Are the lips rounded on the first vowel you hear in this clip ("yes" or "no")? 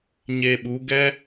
no